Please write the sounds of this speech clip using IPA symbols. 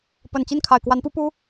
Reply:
p ə˨˩ n t͡ɕ i˥˩ n kʰ a˨˩ ɪ̯ k w a˧˥ n p u˥ p u˥

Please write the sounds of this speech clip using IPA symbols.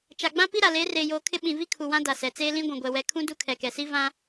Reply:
t͡ʃ a˨ ɡ͡b ã˦ p i˦ ɾ a˨ l eː˨˦ r eː˨ j oː˨ kʰ ɪ˦ ɓ ĩ˨ v i˦ kʰ u˨ w ã˦ d a˨ s ɛ˨ t͡s eː˦ l ĩ˦ ɡʷ ũ˨ ɡʷ ɛ˨ w ɛ˨ kʰ ũ˦ d u˦ kʰ ɛ˨ k ɛ˨ s i˦ v ã˦

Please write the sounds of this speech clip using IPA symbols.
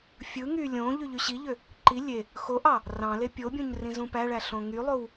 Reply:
fʲ ɯ ŋ y lʲ õ ʎ y ʎ y ɕ i ʎ ø | ǃ i lʲ e | x o ʔ ɑ | r ɑ̃ l e pʲ o bʲ õ ɲ r ĩ z ũ p æ ɭ æ ɬ õ ŋ y lˠ o w

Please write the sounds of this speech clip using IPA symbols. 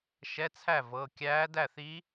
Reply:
ʃ ɛ˧˥˧ t͡sʰ æ˥˩ v ɤ˩˧˩ kʲ æː˧˥ d æ˥˩ θ i˧˥

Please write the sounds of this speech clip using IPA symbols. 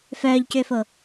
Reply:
f œː ʎ c ʏː f o

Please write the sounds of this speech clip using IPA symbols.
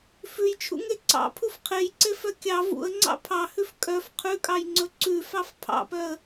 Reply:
f ʉ j t͡ʃʰ ṵ ŋ e ǀ ɑ̰ pʰ u f qʰ e j ǀ e f œ kʲ ɑ v ṵ ə̯ ŋ͡ǀ ɑ̰ pʰ ɑ h ʉ f kʼ œ f qʰ ʉ kʼ ɑ j ŋ͡ǀ ɵ ǀ ʉ f ɑ f pʰ ɑ̰ p œ ə̯

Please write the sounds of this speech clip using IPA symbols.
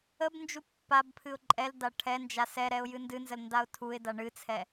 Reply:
ə b n d͡ʒ u pː a b pʰ ɨ ʊ̯ ǃʼ ɛ l d a ʈʰ ɛ n d͡ʒ a s ɛ ɾ ɛ ʊ̯ j ɨ n d ɨ n z ə l n d a ʊ̯ tʰ u ɪ̯ d a ɳ ɨ t͡sʰ ɛ

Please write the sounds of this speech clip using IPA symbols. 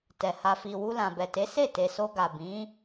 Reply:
t ɛ˨ h a˨ f i˨ w u˧ l ã˨ b ɛ˨ t e˨˦ s e˦˨ t e˨ s o˧ ɡ a˨ b ĩ˨˦

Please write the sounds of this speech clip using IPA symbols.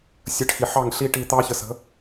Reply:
sʲ ə˨˦ ʈ x i˨ ħ ɑ˦˨ ŋ ɬ i˦ ʈ i˧ t̪ ɑ˦ ç ə˧ s ə̤˨˦

